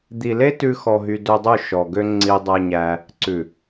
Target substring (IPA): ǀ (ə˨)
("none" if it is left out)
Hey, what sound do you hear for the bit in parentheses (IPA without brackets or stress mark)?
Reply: ʉ˨